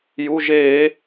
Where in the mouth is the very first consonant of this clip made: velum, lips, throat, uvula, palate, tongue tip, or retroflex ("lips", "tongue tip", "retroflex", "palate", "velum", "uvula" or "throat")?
palate